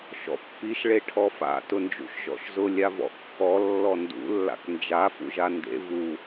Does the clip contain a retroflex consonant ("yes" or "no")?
yes